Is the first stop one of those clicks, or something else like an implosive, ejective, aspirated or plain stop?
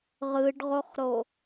plain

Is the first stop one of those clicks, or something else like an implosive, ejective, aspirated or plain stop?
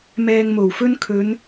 aspirated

